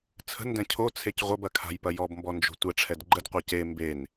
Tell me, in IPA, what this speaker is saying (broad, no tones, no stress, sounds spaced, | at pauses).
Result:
t͡sʰ ə̤ n d ɛ̃ cʰ o t͡sʰ e c ʁʷ ɐ b ɐ kʰ a̤ j p ɐ j ɔ b m b ɔ n d͡ʒ o̤ tʷ ɛ ʈ͡ʂʰ ɛ d ɡ͡ǃ ə d qʷ a c e m b e n